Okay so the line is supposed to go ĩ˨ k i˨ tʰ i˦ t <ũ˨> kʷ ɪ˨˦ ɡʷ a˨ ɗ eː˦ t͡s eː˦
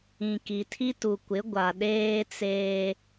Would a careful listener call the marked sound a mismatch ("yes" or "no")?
yes